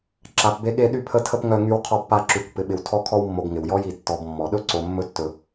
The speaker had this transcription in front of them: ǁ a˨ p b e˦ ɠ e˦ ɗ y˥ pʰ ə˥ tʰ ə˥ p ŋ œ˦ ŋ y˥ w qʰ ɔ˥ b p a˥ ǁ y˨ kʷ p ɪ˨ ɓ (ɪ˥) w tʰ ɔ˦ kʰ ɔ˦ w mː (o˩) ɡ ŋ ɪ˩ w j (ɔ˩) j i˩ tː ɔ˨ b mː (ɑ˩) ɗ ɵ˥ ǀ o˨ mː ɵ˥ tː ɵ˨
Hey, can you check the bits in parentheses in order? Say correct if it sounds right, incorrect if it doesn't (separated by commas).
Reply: incorrect, incorrect, incorrect, incorrect